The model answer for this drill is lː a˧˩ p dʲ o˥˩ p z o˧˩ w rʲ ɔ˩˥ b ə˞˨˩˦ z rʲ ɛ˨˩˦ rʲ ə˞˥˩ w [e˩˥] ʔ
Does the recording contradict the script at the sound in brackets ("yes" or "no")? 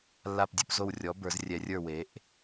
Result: no